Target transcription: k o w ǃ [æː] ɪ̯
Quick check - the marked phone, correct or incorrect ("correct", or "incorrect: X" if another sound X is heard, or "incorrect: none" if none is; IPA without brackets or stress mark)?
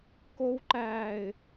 correct